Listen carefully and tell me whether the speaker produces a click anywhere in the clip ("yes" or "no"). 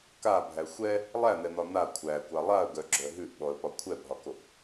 yes